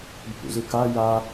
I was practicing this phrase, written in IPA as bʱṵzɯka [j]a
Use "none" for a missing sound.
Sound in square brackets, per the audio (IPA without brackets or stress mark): j